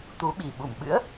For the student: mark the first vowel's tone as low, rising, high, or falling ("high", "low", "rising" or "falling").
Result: rising